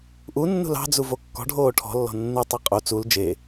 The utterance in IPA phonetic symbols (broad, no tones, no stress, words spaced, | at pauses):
ʔunːṳ lɑ̤d͡zuvo kːɔ̤ɖʱoː ʈʰɔ̤lːɔ̤ nːutˤe qʼo t͡sul d͡ʒe